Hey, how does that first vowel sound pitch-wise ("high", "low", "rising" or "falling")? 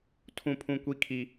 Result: high